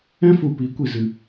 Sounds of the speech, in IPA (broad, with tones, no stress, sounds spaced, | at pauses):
ɛ̃˦ f u˨ p i˨˦ kʷ i˨ z ɨ˨